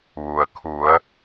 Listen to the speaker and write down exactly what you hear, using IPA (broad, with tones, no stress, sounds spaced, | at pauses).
ʋ u˩ ə̯ kʰ u˩˧ ə̯